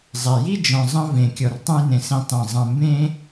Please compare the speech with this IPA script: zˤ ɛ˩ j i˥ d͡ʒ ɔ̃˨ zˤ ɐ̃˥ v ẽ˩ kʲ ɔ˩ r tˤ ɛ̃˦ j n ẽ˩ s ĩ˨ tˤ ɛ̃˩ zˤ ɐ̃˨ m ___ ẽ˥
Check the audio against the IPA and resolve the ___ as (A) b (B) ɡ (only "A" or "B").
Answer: A